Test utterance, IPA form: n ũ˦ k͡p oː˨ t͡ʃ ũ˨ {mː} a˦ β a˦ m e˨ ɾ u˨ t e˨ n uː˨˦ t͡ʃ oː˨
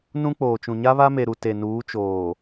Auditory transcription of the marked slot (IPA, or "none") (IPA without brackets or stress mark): ɲ